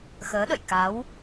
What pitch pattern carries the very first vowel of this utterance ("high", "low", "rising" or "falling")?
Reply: rising